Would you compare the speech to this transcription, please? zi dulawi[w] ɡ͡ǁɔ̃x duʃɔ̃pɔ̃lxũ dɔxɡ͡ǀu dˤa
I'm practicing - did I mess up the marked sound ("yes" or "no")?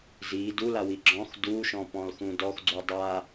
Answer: yes